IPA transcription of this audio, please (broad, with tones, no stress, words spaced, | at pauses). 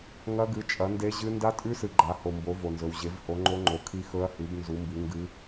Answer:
ŋɐ˦˥ɡɨ˨˥ t͡ʃʼɐ˨˥nde˦˥ʑɨ˦˥ nda˦˥tʼʉ˦˥sɨ˨ ɡ͡ǃa˨˥ho˨mbo˨˥ vo˨nzɵ˨w ʑe˨˥vho˨˥ŋ͡ǃo˦˥ŋ͡ǃo˨˥ kʰi˦˥xɵ˦˥ɐ̯hʉ˨˥b nzu˨˥mbi˨˥ŋɡɨ˦˥